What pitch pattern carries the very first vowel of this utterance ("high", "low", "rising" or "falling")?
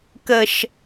low